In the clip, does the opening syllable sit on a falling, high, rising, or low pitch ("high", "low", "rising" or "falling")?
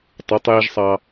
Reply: rising